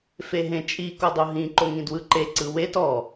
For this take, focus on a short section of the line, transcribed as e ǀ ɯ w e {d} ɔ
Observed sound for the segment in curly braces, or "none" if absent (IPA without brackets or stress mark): t